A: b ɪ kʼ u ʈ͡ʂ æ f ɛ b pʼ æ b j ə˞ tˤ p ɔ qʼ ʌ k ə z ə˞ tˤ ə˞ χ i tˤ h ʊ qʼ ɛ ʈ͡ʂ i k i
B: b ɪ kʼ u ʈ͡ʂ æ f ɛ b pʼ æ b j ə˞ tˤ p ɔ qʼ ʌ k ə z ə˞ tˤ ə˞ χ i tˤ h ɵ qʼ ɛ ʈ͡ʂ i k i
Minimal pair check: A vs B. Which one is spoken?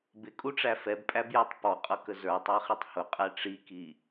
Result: A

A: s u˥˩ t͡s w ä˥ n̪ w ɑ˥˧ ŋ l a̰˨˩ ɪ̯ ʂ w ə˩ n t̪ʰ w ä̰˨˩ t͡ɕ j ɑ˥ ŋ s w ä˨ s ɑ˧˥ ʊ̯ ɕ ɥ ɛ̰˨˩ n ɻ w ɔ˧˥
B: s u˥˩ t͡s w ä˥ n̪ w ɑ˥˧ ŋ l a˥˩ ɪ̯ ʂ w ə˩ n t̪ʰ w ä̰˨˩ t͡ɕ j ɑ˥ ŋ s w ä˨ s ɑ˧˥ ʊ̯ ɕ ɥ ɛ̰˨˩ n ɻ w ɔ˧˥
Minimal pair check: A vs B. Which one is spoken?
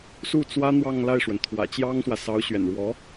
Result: B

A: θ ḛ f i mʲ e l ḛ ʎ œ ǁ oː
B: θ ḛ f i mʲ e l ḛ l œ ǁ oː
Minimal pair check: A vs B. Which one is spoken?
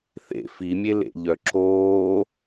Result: A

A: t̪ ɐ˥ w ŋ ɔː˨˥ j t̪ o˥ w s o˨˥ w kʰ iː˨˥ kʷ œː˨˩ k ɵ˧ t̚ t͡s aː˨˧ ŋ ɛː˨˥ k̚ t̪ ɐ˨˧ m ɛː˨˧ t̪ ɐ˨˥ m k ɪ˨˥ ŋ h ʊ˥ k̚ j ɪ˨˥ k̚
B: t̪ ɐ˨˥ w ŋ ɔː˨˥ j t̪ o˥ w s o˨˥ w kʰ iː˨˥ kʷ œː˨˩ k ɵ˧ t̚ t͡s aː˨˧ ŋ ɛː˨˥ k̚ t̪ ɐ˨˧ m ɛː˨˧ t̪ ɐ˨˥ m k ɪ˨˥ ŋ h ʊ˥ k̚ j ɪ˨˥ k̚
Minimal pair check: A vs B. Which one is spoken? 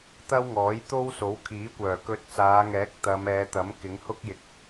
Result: A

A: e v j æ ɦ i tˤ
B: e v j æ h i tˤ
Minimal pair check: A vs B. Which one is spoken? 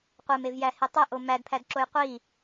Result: B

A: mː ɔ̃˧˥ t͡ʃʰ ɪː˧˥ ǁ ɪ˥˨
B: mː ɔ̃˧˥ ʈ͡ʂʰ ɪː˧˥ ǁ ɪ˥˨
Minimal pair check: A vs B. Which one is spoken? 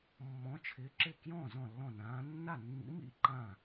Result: A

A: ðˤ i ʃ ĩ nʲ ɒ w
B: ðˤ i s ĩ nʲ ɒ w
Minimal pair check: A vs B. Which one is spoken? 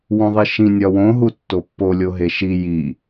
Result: A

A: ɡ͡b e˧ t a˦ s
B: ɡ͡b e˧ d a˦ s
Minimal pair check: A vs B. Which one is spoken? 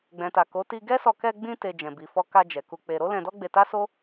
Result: A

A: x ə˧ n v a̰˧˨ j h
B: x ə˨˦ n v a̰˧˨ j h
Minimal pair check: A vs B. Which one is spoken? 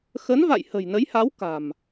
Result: B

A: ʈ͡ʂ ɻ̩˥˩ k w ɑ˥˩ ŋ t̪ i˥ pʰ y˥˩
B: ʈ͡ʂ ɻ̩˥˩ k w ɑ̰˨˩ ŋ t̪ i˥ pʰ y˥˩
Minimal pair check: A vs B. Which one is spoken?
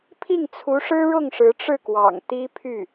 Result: B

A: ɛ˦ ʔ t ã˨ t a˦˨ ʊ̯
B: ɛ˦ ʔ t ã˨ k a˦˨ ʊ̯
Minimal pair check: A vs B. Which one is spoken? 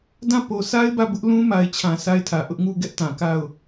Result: B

